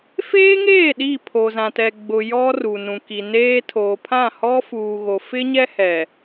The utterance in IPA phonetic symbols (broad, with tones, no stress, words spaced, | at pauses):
feː˦ŋeː˦˨ ɗi˦˨pʰo˨zã˨tɛ˨ ɡ͡bʊ˨ jɔ˦ru˨nũ˨ ki˨neː˦ tʰoː˨pʰã˦˨ hɔ˦fuː˨ɣo˨ fɪ˦ɲɛ˦ hɛ˨